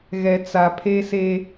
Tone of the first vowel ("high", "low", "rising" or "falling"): low